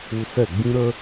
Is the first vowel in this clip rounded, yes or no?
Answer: yes